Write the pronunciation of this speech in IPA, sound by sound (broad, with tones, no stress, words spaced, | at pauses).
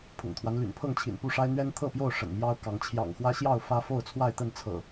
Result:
pʰʊ̰˨˩ŋt̪ʰwa˦n ly̰˨˩npʰɤ˥˨ŋt͡ɕʰḭ˨˩npu˥˨ ʂa˦ɪ̯n̪ɥɛ˦nt̪ʰɤ˥˨pjo˥˨ʊ̯ ʂə̰˨˩nmjɑ˦ʊ̯kɑ˨˦ŋ t͡ɕʰjɑ̰˨˩ŋxwä˦ɕjɑ˥˨ʊ̯ fä˦fo˥˨ʊ̯t͡sʰwa˥˨ɪ̯t̪ə˥˨n t͡sʰɤ̰˨˩